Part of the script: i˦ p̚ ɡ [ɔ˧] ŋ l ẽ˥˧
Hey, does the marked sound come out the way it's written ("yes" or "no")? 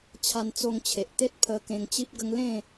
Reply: no